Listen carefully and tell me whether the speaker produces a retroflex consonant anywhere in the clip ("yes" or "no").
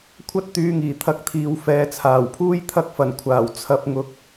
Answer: no